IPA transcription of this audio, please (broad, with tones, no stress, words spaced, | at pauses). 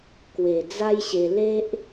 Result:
kwe˨˩ d͡za˦jɕe˧ le˦ʔ